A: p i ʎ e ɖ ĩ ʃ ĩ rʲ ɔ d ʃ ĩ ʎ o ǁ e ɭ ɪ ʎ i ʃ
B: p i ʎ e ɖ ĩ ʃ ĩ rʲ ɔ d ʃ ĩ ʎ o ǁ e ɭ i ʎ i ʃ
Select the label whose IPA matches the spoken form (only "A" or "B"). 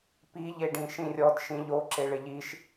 A